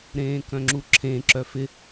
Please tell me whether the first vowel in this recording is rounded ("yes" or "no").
no